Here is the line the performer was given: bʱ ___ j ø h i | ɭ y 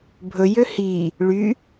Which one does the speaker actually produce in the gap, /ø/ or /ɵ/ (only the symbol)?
ɵ